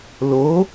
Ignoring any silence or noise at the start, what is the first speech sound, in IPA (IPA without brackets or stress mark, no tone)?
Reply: l